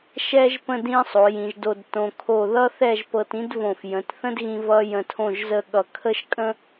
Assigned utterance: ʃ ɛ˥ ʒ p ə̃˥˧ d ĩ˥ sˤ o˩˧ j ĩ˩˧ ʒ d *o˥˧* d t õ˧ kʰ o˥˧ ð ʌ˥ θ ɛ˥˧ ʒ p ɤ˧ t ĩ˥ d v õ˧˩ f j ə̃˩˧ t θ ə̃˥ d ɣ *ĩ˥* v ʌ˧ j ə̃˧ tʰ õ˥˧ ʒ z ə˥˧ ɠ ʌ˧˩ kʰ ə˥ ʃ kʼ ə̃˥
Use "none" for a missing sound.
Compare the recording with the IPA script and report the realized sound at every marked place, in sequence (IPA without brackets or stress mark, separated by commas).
o˧, ĩ˧